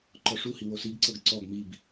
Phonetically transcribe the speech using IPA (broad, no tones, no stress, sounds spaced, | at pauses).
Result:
ǃ ɔ ʂ u h i w o s i ɡ ǀ ɤ ɡ ǀ ɔ ɡ m i b